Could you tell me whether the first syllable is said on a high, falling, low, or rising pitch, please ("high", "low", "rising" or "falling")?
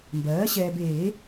rising